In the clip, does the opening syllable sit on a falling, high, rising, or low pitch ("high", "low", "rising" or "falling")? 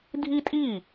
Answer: high